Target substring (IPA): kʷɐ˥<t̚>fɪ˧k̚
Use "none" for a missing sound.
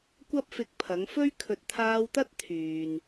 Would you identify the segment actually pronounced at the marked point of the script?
p̚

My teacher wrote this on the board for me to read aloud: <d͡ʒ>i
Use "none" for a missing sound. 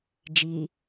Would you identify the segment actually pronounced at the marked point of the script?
d͡ʒ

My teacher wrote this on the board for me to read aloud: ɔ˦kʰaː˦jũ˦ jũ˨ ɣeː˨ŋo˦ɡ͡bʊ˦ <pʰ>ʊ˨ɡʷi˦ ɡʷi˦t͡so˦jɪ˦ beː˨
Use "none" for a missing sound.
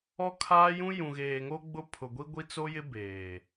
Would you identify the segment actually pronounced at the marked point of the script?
pʰ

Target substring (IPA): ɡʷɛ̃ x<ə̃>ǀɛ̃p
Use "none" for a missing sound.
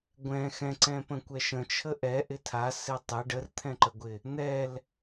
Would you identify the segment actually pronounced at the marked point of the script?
ɛ̃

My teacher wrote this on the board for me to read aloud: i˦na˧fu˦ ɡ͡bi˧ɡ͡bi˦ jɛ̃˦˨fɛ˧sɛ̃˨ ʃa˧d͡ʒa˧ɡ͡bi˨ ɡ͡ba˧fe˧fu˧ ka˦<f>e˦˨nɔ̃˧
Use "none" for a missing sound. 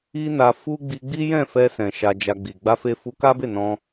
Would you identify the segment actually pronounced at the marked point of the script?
b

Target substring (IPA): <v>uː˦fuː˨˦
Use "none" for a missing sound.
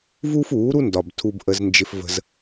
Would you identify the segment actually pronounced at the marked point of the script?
v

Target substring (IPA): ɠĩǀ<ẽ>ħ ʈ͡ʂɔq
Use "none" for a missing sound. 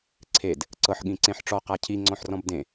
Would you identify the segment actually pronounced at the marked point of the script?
ẽ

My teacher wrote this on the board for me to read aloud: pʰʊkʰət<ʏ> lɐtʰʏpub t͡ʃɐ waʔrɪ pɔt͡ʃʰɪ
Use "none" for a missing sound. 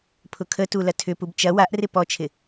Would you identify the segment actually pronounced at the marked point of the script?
u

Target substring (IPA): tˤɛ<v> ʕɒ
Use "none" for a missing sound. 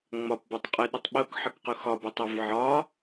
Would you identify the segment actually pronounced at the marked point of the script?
v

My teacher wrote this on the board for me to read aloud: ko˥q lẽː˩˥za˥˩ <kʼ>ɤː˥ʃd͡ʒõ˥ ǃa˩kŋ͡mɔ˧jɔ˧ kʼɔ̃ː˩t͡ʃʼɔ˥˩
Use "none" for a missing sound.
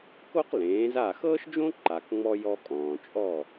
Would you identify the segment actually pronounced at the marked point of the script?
x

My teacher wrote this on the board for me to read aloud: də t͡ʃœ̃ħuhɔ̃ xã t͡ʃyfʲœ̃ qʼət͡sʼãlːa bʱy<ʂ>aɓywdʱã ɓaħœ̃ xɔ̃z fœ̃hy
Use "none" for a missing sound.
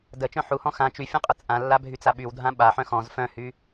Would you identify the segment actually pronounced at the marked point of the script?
t͡s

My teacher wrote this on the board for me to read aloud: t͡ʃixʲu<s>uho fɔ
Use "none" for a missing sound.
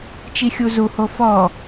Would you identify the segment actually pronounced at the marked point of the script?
z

